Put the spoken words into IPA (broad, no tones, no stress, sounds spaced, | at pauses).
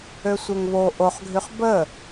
ø sʷ e ŋ β o ʔ o χ ɡʱ y χ b ə